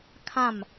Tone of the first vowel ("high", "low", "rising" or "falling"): falling